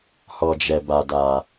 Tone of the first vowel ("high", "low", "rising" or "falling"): low